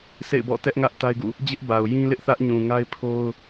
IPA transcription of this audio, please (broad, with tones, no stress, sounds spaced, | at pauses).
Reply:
s ḛ˦˨ ɪ̯ b ɔ̰˦˨ t ɛ˦ ʔ ŋ ä˦ ʔ t a˦ ɪ̯ ɡ ṵ˦˨ | d͡ʑ ɪ˦ ʔ b a˨ ʊ̯ j ĩ˦ l ɪ˦ ʔ θ ä˦ ʔ ɲ ũ˨ ŋ a˦ ɪ̯ pʰ o˦ ʊ̯